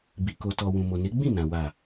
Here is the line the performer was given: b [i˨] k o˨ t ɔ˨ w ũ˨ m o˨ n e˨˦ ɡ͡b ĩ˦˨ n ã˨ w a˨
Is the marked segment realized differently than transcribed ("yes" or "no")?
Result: no